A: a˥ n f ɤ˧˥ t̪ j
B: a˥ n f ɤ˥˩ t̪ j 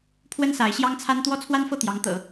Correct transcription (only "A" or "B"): B